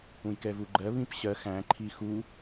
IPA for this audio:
ũ j k ɛ v u ɡ͡ǃ ɜ β ĩ p ɕ ɜ x æ̃ ǃʰ i x u

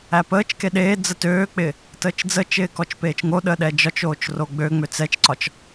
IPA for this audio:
æ p əː t͡ʃ k e ɗ eː d͡z ə t øː k͡p ɪː | t əː t͡ʃ d͡z əː t͡ʃ ɪː k ɔ t͡ʃ p eː t͡ʃ ŋ o ɗ əː ɗ ɛ d͡ʒ ɒ t͡ʃ oː t͡ʃ r o ɡ͡b ø ŋ͡m ø t͡s ɛ t͡ʃ ǀ ɒ t͡ʃ

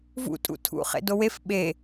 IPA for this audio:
v ṵ tʼ ṵ tʰ ṵ χ ḛ d o w e f ɓ e

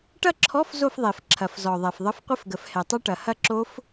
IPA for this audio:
ʈ ɐ˥˧ ǁʰ ɔ˧˥˧ f z o˥˧ f ðˤ e˨˩˦ f ǁʰ ɐ˨˩˦ f z ɔ˨ ðˤ ɛ˨ f ðˤ ə˧˥˧ f qʷ ə˦˥ f ɡ ə˨˩˦ f h ɛ˨ tˤ ɐ˦˥ ʈ ɐ˨ h ɐ˥˧ ǁ o˦˥ f

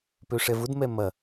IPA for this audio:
p ø ʂ ɛ v ʊ d m ɛ m ɐ

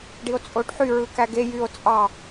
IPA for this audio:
ɖ i o̯ t͡sʼ o ɖ ħ y ɹ ɯ k æ ɡ e j y o̯ t͡sʼ ɑ

